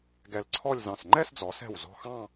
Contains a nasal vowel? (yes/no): yes